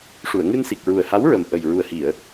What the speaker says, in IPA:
ʂ u˨˩˨ ə̯ ŋ ɨ˧ n s i˨˩ k̚ ɹ u˨˩ ə̯ h a˧˥ w ɹ ə˨˩ m ʔ ə˨˩ j ɹ u˨˩ ə̯ h i˨˩˨ ə̯

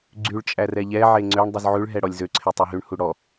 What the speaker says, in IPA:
ɡ͡ǀ y ɭ t͡ʃʼ æ r ɛ ʎ ɛ ʕ e ŋ͡ǀ ø ɳ dˤ ʉ z ʕ ʉ ɭ ɦ ɛ ɽ ɔ lʲ z ø ǀʰ e tˤ œ ɦ y ɳ h u ɽ ɔ

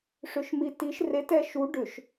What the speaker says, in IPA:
ʂ ʏ ʃ m i t i ʃ r e t ɛ ʃ u ɖ ʏ ʃ

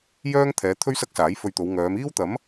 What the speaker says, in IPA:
j œː˥ ŋ t̪ʰ ɛː˨˧ t̪ʰ ɵ˥ ɥ s ɐ˥ k̚ s aː˨˥ j f ɵ˧ ɥ t̪ o˨˧ w ŋ œː˨˧ m iː˥ w t̪ ɐ˨˥ m

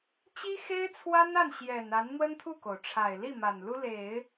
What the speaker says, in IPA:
t͡ɕ i˥ x e˥ ɪ̯ t͡sʰ w a˥ n a˥˩ n ɕ j ɛ˨˩ n a˧˥ n n̪ w ə˥ n t̪ʰ u˥˩ k o˩ ʊ̯ ʈ͡ʂʰ a˨˩ ɪ̯ l i˥˩ m a˨˩ n l u˥ l e˨˩˦ ɪ̯

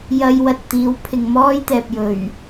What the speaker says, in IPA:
j ɐ˧ j w ɐ˨ t̚ t̪ iː˨˥ w pʰ ɪ˨ ŋ m ɔː˥ j t̪ ɛː˨ p̚ j ɵ˨˩ ɥ

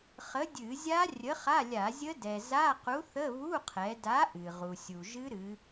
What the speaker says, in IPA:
χ ə˨˥ dʲ ɨ˧˩˧ zʲ a˦˥ rʲ ə˨˥ χ a˧˥˧ lʲ a˧˩˧ zʲ ə˦˥ d ɛ˩ z a˧˥˧ q u˨˥ θ ə˧˥˧ β u˧˥˧ qʰ ɛ˩˧ d a˨˥ ʔ ɨ˩ ʁ u˩ sʲ u˩ ʒ ɨ˦˥ ɾ ɨ˩˧

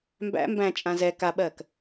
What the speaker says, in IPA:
m b æ̰ m b æ̃ t͡ʃʼ ã z ɛ k a ɓ ɜ k

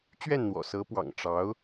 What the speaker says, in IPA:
t͡ɕ ɥ ɛ˥˩ n n̪ w ɔ̰˨˩ s ɤ˧˥ p w ɑ̰˨˩ ŋ ʈ͡ʂ ɑ˧˥ ʊ̯

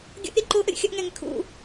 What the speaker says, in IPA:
ɡʲ ə̰ ʔ ɾʲ ɛ ǃ o ʔ ə ɾʲ ə̰ xʲ ə ʔ ŋ ɛ ŋ ʏ kʰ ṵ

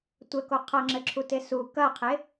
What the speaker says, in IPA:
tʷ ɘ k o qʰ ɐ ŋ͡ǁ ɘ ǁʰ u t e s u k ɐ qʰ e

